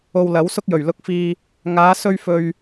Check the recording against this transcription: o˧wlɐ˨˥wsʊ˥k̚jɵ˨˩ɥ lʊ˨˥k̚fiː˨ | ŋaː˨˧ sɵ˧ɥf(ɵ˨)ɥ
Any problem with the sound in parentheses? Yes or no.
no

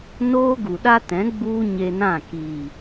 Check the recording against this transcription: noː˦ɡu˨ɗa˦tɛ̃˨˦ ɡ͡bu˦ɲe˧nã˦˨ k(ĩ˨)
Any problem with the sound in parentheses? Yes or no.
yes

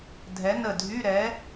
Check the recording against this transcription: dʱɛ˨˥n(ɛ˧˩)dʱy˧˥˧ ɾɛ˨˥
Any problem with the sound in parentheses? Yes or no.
yes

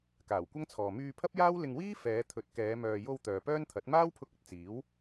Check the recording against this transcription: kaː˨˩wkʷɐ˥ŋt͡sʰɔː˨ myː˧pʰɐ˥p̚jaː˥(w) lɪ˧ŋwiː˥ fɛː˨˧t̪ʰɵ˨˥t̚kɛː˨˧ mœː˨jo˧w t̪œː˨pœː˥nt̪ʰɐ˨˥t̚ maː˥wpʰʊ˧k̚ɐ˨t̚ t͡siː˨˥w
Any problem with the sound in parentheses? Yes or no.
no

